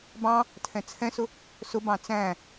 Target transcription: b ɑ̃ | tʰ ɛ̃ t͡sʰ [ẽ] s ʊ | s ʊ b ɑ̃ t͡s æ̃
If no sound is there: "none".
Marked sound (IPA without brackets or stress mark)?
ɛ̃